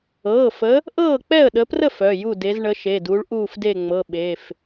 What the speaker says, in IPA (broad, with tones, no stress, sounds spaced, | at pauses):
ɤː˩˧˩ f ə˨˦ | ʔ ɤː˥˨ k͡p ɛ˥˨ ə̯ ɗ ə˨˦ p r ə˥˨ f œ˩˧˩ j u˥˨ d e˨˦ z ɳ ə˨˦ ʃ e˩˧˩ d u˨˦ ɭ ʔ uː˥˨ f d e˥˨ ŋ͡m ɤ˩˧˩ ɓ e˩˧˩ f